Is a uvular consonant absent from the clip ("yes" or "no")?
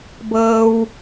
yes